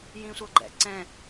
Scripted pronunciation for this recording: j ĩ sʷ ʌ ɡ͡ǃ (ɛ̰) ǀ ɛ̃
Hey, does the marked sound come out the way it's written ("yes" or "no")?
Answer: yes